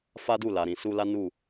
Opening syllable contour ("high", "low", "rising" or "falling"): high